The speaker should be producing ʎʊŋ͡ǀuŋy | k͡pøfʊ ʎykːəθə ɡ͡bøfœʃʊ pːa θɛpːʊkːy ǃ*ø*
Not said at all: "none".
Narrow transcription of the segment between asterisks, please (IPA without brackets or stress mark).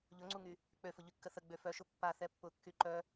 œ